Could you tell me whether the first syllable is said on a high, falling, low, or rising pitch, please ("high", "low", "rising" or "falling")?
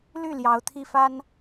falling